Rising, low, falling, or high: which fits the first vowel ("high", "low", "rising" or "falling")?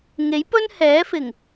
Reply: rising